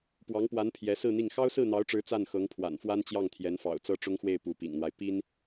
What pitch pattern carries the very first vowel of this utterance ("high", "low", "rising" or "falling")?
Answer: rising